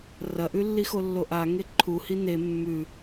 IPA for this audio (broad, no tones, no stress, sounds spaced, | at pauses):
r ɐ ʔ ʉ lː i x o lː o ʔ a ŋ e ǃʰ u h i n e mː ʉ